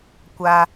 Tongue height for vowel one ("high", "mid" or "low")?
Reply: low